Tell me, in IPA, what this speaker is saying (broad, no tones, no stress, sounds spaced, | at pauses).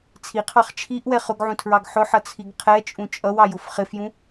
t͡sʰ i qʰ ɑ χ t͡ʃʰ i ʔ w ɛ χ ʊ ɡ ʕ ũ tʰ ɹ ɑ ɡ ħ ʊ ħ ʌ t͡sʰ i ɡ qʰ ɛ t͡ʃʼ ũ t͡ʃʼ ʌ w ɑ j ʊ f χ ɪ f j ũ